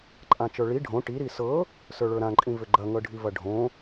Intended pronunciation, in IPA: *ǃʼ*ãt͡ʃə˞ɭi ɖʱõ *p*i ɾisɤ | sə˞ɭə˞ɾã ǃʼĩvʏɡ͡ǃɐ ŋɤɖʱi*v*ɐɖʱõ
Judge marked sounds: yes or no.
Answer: yes, no, yes

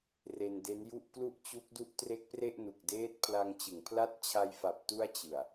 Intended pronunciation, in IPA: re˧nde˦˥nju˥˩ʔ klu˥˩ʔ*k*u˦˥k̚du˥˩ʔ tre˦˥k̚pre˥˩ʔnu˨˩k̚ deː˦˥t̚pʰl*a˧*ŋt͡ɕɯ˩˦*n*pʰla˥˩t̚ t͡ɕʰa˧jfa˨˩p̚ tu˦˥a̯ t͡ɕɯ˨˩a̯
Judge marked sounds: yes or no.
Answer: no, yes, no

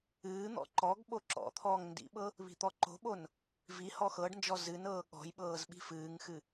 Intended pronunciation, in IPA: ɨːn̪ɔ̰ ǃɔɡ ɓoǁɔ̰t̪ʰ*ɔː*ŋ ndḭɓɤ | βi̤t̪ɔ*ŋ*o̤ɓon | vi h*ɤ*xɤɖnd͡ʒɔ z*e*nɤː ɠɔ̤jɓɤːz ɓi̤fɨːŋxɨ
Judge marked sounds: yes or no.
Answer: yes, no, no, no

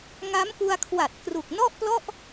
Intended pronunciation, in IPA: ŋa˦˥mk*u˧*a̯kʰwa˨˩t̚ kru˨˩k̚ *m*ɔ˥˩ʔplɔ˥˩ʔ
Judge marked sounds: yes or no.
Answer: yes, no

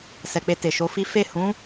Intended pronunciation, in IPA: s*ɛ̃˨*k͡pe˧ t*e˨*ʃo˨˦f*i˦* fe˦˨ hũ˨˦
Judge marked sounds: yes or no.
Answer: no, yes, yes

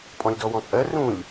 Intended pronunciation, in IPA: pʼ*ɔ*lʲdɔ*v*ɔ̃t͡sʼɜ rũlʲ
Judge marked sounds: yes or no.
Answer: no, no

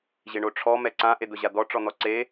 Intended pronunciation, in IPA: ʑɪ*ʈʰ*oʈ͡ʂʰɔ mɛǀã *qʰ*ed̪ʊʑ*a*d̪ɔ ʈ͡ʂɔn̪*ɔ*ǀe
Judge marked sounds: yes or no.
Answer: no, no, yes, yes

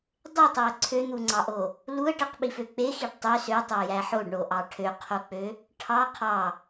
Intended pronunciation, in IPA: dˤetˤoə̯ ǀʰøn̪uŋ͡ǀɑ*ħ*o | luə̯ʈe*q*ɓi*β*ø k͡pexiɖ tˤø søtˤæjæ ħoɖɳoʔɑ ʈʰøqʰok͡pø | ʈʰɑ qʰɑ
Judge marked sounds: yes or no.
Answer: no, yes, no

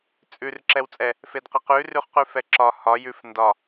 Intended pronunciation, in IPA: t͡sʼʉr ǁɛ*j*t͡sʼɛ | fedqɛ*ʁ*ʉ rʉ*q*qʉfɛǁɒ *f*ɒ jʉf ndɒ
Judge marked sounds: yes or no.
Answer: no, no, no, no

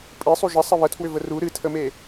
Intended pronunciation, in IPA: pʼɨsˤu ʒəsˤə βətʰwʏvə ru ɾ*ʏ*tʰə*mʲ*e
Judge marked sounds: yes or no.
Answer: no, no

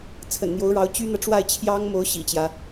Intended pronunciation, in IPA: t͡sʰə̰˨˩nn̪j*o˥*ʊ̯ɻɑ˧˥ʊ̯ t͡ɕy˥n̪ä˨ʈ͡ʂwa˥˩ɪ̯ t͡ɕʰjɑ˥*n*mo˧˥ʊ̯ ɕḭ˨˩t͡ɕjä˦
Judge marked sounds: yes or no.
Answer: no, no

